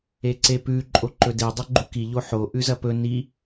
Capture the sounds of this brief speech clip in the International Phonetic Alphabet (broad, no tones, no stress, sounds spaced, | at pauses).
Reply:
e ǀ e p ʉ ǃʼ o ǃ ɵ d e dˤ o ɡ͡ǃ u k i ʎ o ħ o ʔ ʉ z ɐ p ɵ n i